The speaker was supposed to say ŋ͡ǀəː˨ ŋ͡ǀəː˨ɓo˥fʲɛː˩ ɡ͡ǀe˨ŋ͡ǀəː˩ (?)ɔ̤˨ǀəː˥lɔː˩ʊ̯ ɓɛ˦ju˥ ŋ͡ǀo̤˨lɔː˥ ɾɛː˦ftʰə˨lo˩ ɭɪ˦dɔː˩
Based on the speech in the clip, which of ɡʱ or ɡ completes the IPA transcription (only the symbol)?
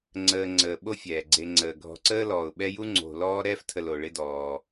ɡʱ